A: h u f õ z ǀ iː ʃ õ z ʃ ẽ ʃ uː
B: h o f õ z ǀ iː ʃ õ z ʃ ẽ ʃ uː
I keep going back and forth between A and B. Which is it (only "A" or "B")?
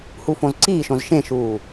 A